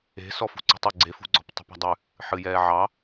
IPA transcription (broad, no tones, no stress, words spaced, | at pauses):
e̤sɔfṳ ǀṳtˤu ɡ͡ǀefṳɡ͡ǀɔ̤p tˤṳpa̤dˤʉ | ħɨjɛːʕɑ